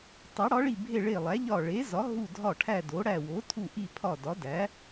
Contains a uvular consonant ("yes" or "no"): no